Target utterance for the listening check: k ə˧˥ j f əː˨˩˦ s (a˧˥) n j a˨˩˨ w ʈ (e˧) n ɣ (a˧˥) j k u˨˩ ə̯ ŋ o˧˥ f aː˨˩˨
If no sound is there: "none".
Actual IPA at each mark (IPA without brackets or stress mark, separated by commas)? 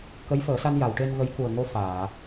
a˧, e˧, ə˧˥